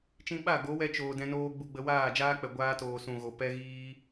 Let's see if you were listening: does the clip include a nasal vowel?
yes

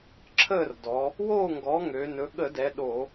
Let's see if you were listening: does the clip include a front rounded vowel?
yes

